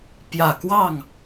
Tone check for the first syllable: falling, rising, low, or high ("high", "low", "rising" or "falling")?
low